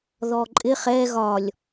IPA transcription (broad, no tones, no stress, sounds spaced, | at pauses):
ð ɔ ǃʼ ɪ χ ɛ ɣ ɒ lʲ